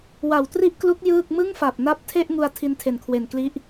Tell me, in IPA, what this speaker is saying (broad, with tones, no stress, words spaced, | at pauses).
wa˨˩wtri˥˩ʔklu˦˥k̚ jɯː˥˩k̚ mɯ˥˩ŋfa˨˩p̚na˦˥p̚ tʰe˥˩ʔŋu˧a̯ tʰi˦˥ntʰe˨˩nkʰwe˨˩n kli˦˥ʔ